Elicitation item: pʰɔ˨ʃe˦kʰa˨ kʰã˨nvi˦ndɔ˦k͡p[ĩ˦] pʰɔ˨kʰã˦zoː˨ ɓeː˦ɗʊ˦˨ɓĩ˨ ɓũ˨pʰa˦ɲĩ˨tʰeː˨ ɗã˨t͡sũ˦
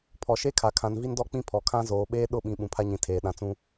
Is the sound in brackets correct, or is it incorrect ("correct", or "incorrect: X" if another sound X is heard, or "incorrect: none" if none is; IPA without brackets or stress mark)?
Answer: correct